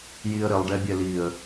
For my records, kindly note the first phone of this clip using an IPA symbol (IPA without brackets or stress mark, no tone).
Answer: j